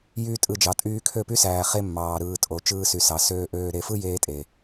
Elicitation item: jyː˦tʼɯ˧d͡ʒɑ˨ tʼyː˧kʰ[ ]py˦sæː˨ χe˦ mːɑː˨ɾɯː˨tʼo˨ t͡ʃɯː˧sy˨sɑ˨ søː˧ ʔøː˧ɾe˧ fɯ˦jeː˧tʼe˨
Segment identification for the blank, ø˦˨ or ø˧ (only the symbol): ø˦˨